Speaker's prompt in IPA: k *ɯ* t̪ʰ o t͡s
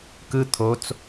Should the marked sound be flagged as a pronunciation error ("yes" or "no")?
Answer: no